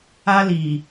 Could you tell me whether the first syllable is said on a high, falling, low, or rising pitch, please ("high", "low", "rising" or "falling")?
high